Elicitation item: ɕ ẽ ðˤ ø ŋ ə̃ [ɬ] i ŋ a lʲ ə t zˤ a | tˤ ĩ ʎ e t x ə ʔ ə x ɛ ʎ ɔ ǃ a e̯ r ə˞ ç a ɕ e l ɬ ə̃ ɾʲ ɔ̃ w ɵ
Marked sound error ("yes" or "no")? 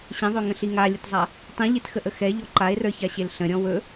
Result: no